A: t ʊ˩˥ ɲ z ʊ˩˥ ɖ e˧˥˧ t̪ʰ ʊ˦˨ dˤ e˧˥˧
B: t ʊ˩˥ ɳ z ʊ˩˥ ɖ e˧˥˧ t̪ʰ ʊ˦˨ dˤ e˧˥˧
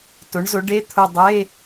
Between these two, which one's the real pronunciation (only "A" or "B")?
B